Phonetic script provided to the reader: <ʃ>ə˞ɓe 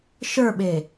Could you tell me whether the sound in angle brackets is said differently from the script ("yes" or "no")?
no